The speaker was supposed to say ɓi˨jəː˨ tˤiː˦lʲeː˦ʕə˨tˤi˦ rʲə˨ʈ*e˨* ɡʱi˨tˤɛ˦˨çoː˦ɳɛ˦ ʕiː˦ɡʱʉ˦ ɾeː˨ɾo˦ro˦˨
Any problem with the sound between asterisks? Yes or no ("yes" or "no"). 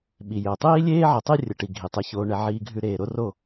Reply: yes